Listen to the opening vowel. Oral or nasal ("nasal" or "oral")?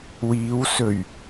oral